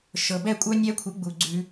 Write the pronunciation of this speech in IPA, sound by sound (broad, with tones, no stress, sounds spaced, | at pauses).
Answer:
ʃ ɤ˨ b ɛ˦˨ kʷʼ œ˦ nʲ ɛ˦ kʷʰ ɨ˨˦ ɡ͡b u˨ ɡ͡ǀ ʉ˧